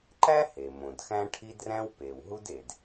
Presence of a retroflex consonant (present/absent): present